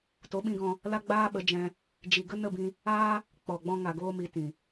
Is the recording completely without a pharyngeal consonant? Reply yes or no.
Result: yes